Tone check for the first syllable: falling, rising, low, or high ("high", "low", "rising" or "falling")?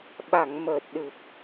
low